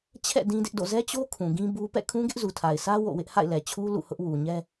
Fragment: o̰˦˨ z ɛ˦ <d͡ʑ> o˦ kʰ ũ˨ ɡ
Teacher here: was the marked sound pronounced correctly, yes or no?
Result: no